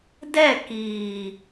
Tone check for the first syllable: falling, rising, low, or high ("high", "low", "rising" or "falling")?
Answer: falling